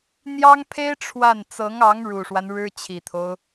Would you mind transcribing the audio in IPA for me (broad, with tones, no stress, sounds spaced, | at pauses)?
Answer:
n̪ j ɑ˥ ŋ pʰ e˥ ɪ̯ ʈ͡ʂʰ w a˥˩ n t͡s ɤ˧˥ ŋ ɑ˧˥ ŋ ɻ u˨˩ ʂ w a˦ n ɻ ɻ̩˥ t͡ɕʰ i˨˩ t̪ʰ o˦ ʊ̯